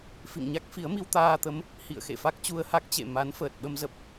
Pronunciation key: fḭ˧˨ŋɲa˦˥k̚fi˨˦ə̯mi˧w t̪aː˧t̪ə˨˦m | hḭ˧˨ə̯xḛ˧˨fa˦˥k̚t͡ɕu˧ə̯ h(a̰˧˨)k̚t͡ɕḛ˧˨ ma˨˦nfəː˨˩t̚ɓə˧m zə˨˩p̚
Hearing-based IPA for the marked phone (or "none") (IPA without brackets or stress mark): a˦˥